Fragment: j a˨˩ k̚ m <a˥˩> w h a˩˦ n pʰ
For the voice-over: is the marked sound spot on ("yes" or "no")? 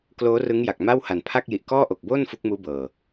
yes